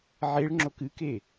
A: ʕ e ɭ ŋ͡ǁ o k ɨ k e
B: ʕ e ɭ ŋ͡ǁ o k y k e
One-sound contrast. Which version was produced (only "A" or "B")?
A